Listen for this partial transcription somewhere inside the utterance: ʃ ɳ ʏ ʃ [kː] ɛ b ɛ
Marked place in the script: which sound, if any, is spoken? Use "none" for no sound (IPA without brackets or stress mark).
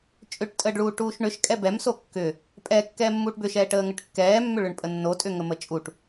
kʼ